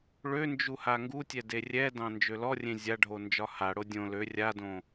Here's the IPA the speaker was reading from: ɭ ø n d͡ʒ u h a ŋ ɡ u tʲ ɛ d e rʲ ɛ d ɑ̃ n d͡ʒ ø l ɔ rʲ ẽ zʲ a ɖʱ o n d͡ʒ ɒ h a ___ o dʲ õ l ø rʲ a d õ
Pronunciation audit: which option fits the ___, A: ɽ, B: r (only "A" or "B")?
A